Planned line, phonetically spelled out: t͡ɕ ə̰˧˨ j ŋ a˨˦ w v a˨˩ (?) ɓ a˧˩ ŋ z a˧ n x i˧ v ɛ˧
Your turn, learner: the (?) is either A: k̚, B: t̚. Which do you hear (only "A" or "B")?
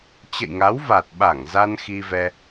B